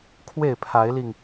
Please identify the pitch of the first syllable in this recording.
falling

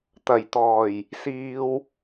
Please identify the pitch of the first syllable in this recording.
low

